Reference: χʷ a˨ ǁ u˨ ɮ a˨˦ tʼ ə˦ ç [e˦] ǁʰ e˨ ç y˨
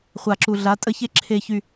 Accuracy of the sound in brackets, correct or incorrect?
correct